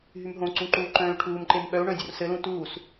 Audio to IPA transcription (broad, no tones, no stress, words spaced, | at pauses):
ɦymɦõǀũ ǃuːǃœ̃ːy̯ʈʰuːmǃem ɓœu̯ɳœ̃ dʲorsɘlũ tuːs